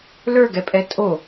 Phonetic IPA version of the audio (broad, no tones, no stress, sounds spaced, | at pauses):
l ə˞ ɡ ɛ pʼ ɛ tʼ o